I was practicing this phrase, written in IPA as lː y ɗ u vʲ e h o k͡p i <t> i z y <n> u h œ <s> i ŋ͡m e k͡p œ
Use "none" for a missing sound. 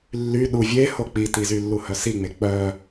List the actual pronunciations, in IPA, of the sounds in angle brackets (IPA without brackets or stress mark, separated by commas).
t, lː, s